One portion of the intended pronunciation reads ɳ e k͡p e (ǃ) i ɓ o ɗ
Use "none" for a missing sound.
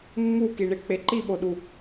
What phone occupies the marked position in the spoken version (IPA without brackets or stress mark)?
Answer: ǃ